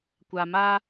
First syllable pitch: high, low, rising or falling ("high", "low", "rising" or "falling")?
low